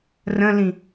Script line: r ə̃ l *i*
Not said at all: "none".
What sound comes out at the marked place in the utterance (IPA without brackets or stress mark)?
ĩ